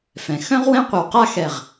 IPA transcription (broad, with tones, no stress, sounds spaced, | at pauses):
f ɛ̃˩˧ x œ̃˥ ʁ w ɛ̃˥ qʷ ɐ˧ w q a˥˧ x ɛ˧˩ ʁ